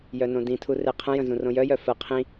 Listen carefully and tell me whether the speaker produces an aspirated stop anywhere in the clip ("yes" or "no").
yes